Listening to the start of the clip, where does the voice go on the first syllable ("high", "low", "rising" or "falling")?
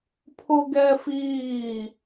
high